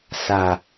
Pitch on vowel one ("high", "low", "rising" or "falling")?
low